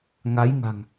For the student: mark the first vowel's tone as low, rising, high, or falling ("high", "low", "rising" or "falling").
rising